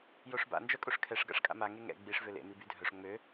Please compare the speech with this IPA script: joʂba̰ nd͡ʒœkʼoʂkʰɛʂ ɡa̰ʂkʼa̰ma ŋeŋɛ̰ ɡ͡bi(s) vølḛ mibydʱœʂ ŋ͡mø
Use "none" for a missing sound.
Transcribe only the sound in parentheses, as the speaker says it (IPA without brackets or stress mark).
ʂ